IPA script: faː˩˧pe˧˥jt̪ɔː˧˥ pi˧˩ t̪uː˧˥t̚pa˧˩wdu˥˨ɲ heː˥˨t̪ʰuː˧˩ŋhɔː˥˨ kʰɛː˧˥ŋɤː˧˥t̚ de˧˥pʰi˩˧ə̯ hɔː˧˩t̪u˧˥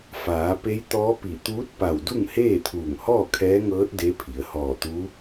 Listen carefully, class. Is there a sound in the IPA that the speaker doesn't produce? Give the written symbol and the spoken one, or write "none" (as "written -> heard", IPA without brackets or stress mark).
ɲ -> ŋ